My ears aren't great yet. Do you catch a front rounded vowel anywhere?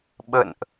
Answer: no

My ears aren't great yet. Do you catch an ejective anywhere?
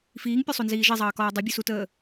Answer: no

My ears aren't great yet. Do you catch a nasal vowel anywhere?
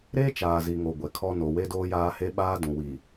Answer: yes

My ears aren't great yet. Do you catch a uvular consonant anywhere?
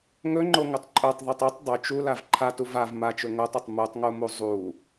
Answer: no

